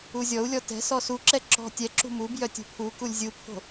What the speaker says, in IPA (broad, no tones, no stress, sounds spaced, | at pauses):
u zʲ ɔ u̯ lʲ ɔ t ɛ̤ s ɔ s u ǁ ɛ ǁ ɔ̤ tʲ ɛ ǁ ṳ m u b j œ tʲ ṳ pʰ u k u lʲ zʲ u pʰ o̤